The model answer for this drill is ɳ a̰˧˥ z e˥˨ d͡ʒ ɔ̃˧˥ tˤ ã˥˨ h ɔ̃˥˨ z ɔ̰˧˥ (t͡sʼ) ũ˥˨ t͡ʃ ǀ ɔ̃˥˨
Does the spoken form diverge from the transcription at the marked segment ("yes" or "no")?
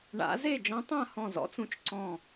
yes